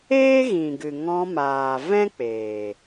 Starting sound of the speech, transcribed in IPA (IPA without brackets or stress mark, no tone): eː